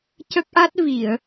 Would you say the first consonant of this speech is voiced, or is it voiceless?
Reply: voiceless